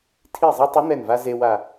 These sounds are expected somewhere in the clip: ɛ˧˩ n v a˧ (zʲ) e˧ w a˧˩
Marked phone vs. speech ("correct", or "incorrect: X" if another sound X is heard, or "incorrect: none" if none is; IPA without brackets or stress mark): incorrect: z